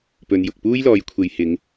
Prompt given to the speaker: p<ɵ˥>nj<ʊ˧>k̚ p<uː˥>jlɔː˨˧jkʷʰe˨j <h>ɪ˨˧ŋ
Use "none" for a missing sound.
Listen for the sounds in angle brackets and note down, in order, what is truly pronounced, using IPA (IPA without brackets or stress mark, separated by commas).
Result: ɵ˨, ʊ˨, uː˥, h